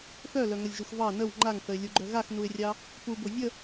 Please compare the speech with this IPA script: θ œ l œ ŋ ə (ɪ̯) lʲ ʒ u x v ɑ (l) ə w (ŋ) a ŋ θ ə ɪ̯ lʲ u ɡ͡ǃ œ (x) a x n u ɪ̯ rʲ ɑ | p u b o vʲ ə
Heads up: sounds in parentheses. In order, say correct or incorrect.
incorrect, incorrect, incorrect, incorrect

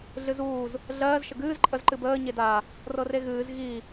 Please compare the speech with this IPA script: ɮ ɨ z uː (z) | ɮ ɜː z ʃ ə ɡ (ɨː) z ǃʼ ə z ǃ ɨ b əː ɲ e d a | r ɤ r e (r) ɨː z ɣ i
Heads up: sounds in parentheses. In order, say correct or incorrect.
correct, correct, incorrect

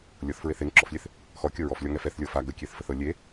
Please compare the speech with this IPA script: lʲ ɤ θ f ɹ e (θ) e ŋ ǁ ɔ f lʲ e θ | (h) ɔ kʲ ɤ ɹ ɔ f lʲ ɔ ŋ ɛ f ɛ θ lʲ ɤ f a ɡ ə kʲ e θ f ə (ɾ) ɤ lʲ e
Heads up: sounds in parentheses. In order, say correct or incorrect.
correct, incorrect, incorrect

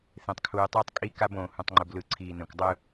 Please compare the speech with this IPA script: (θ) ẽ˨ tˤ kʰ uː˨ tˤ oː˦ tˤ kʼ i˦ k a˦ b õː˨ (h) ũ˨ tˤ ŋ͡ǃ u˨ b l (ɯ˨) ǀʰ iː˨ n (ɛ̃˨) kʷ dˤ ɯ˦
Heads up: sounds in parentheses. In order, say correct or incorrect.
correct, correct, correct, correct

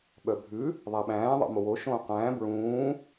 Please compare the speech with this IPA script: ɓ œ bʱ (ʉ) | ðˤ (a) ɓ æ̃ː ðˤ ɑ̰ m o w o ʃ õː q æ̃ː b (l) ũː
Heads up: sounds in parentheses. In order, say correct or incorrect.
correct, incorrect, incorrect

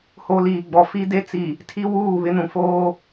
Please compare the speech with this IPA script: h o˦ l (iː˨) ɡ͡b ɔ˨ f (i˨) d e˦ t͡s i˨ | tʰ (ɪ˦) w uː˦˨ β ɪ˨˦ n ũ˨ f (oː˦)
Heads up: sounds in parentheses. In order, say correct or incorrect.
correct, incorrect, incorrect, correct

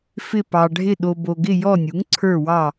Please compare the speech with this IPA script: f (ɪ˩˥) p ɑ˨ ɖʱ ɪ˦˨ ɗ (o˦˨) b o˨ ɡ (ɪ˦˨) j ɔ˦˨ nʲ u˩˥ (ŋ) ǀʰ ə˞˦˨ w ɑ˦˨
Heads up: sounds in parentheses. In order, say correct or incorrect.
incorrect, incorrect, correct, correct

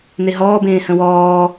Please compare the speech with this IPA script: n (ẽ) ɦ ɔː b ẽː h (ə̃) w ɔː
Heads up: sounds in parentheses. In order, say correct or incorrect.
incorrect, correct

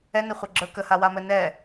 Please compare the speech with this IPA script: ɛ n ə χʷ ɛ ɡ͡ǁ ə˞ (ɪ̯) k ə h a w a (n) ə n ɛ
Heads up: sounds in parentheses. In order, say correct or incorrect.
incorrect, incorrect

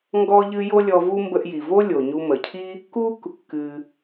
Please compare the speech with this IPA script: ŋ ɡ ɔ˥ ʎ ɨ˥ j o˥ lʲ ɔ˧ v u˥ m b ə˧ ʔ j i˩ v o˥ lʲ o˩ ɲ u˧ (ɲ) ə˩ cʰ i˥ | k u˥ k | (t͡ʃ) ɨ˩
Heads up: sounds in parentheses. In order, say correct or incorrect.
incorrect, incorrect

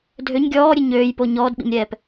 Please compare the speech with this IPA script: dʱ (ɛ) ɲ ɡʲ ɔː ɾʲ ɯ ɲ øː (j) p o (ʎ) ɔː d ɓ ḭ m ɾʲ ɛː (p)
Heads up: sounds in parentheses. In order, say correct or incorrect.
incorrect, correct, incorrect, correct

